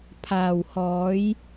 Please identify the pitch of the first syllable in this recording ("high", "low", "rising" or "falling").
low